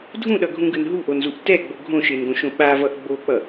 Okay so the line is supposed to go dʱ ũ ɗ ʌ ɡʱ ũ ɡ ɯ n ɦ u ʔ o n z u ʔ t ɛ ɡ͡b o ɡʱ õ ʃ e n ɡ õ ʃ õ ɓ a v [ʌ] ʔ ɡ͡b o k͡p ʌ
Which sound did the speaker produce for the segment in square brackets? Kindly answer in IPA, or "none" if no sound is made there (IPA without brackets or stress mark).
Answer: ʌ